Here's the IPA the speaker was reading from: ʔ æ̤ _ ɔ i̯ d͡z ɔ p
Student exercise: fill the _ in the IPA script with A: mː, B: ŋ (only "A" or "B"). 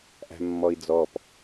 A